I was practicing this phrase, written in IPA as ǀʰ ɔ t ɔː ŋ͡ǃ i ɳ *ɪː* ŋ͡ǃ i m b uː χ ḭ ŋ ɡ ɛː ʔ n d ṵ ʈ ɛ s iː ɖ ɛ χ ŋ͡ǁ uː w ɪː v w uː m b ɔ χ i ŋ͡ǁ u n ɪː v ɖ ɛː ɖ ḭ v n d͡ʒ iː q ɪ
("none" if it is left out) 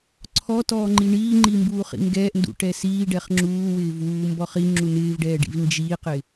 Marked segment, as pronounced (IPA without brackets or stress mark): iː